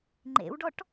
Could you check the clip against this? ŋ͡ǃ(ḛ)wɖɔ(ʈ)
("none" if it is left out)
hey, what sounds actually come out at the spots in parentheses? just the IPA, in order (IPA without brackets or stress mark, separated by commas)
ḛ, ʈ